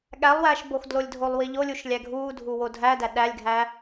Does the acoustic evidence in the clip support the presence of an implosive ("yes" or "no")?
yes